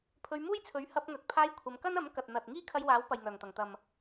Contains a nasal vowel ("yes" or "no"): no